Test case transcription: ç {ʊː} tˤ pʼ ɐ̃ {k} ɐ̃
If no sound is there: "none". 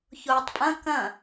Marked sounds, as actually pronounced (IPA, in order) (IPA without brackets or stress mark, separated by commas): ʊː, k